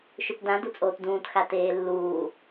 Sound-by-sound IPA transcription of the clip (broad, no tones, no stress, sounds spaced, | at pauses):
ʃ ʏ p d ã d u t͡sʼ oː t d ũː t x a t eː lː uː